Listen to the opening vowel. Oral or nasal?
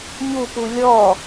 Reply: oral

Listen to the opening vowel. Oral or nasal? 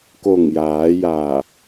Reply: oral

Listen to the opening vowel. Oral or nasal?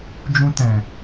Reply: nasal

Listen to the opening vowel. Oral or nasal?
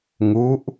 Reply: oral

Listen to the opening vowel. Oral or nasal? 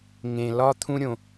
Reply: nasal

